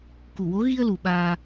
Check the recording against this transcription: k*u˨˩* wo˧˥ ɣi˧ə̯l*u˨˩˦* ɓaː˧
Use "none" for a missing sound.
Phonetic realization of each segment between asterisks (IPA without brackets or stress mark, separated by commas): u˨˩, u˨˩